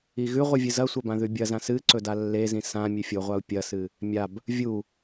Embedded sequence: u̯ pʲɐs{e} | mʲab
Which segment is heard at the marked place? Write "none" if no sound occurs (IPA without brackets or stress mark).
ɨ